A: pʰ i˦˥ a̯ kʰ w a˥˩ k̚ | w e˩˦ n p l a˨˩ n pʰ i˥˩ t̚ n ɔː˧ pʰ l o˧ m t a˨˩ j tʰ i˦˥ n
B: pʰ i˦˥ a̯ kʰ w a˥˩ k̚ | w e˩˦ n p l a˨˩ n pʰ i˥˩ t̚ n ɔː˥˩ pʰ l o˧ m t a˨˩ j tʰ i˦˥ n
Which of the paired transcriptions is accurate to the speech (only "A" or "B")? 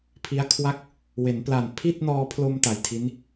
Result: A